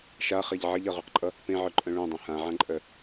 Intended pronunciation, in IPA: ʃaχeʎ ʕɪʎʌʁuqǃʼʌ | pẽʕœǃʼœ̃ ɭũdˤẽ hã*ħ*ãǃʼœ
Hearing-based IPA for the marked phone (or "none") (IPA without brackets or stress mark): ʕ